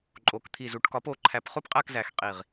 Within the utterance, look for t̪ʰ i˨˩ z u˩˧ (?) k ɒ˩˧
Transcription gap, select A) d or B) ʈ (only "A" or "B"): B